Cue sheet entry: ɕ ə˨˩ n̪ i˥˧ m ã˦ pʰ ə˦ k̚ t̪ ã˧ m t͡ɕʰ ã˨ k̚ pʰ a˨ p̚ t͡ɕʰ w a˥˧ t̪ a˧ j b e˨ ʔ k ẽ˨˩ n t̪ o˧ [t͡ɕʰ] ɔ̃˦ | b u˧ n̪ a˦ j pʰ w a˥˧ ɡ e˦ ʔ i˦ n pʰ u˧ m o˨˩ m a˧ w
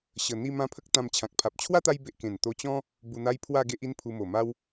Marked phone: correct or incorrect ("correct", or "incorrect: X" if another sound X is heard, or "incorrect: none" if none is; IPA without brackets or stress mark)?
incorrect: t͡ɕ